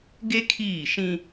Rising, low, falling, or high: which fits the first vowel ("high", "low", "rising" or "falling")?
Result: high